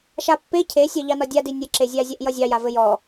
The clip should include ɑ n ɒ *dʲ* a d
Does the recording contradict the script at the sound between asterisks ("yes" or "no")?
no